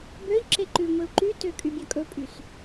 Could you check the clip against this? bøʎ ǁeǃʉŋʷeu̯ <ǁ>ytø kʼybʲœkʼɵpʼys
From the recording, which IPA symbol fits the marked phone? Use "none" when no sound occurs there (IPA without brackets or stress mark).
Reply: ǃ